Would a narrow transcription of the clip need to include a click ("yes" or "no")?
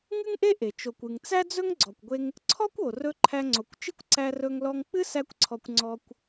yes